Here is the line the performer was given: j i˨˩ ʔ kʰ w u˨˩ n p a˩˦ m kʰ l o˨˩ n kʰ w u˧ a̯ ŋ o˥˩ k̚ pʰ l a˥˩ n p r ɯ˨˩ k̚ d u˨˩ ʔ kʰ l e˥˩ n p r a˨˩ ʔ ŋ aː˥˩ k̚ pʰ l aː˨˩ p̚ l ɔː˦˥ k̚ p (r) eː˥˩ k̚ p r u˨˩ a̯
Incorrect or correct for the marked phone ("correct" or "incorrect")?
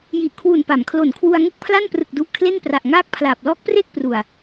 correct